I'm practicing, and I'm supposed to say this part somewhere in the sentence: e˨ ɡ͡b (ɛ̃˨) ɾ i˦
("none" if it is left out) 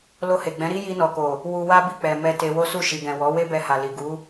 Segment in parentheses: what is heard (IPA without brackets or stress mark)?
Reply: ɛ̃˨˦